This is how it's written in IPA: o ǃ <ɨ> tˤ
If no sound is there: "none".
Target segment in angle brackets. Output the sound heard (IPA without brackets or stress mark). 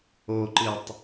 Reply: ɨ